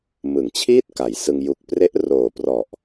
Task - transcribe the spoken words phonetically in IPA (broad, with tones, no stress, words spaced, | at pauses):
mɯ˩˦ŋt͡ɕʰiː˥˩t̚ ka˩˦jsɯ˧ŋ ju˨˩k̚pre˦˥ʔ roː˨˩prɔ˨˩ʔ